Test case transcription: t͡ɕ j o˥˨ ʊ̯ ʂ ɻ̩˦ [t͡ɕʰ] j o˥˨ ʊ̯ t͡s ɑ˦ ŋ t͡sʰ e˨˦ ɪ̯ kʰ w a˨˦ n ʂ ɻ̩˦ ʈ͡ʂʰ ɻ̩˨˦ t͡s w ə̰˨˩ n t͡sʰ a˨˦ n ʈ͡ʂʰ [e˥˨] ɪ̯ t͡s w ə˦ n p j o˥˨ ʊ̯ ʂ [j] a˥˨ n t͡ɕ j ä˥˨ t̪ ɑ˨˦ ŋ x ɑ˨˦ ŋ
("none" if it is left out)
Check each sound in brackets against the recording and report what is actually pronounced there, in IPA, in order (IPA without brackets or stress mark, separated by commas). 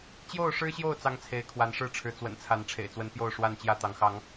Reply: ɕ, ḛ˨˩, w